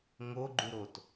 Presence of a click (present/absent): present